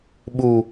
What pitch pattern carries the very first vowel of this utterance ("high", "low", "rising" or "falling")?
low